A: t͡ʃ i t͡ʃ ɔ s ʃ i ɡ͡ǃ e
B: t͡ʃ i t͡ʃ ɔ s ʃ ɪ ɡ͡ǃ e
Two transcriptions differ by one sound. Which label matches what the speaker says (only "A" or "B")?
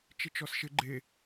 B